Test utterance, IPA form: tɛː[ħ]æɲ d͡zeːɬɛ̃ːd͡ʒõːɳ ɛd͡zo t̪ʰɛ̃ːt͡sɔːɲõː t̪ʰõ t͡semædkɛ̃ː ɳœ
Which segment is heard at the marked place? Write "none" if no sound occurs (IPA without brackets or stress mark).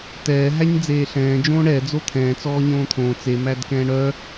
ɦ